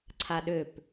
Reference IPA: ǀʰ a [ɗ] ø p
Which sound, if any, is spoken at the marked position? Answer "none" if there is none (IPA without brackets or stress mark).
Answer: ɗ